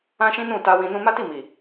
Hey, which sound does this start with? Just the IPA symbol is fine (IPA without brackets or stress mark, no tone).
ã